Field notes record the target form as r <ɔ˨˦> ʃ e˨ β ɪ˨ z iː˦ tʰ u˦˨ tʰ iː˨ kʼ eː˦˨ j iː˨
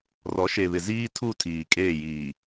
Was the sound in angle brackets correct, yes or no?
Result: yes